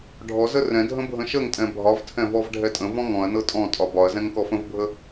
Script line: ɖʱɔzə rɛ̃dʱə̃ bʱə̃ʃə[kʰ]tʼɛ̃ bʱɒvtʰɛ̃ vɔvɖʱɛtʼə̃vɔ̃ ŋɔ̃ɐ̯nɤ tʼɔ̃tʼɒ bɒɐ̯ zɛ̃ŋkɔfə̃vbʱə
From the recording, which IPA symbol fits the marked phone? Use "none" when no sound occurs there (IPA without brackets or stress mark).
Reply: ŋ